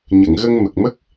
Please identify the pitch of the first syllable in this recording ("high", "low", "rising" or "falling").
low